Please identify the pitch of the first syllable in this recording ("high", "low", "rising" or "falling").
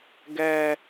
low